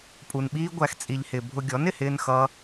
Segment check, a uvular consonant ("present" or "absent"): absent